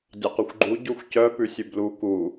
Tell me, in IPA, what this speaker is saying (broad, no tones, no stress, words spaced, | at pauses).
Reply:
dʲɑqʉxʷɡ͡ǃu ɟuxʷcœ pʉsʲʉblu ku